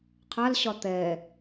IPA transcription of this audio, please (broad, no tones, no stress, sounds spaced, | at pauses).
qʰ a l ɕ ɒ t̪ ɛ